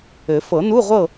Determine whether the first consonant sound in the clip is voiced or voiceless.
voiceless